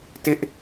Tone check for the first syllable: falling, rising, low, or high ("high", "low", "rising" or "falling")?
high